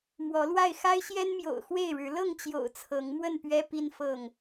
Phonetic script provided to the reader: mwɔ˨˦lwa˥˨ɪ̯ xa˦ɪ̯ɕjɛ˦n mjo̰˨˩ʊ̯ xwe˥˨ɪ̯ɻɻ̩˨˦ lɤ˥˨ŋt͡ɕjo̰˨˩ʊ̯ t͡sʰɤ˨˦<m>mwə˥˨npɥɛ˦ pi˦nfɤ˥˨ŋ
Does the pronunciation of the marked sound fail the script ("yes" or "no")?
yes